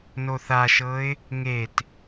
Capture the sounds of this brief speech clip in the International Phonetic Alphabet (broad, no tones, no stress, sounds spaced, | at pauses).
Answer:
n o θ a ʃ ɤ ɪ̯ | ŋ e t